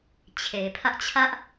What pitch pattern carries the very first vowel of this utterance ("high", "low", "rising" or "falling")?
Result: low